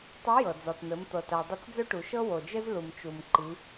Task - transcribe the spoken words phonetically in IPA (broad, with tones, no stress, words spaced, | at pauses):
tˤɘ˧˥jɤ˩d͡zɔ˩tn̪ɘ˩˧m t̪ɤ˩ta˩ dˤɘ˧˥t͡sd͡zɵ˥ʈu˩ʃɤ˥ wo˩d͡ʒɘ˥z lu˩mt͡ʃu˩m ǃi˩˧